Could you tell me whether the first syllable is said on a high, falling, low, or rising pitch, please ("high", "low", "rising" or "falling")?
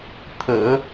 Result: low